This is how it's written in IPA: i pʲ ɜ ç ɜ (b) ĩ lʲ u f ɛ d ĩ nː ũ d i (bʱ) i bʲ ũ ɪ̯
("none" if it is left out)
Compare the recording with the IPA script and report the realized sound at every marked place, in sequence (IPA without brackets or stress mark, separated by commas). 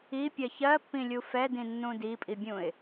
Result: pː, pʼ